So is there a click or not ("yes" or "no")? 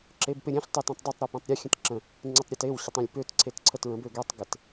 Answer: yes